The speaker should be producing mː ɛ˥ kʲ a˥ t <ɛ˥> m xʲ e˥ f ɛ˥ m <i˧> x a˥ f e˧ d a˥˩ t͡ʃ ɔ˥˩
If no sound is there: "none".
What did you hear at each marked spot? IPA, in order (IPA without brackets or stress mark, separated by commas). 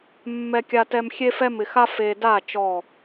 ɛ˥, ɪ˧